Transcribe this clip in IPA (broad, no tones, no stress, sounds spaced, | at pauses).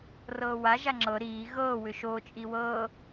r ɤː w a ʒ a ŋ͡ǁ ɤ ɾ iː ɣ ɤː w ʏ ʃ o t͡ʃʼ i w ɤː